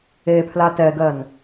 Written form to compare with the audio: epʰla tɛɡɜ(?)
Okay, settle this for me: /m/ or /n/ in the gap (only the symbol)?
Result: n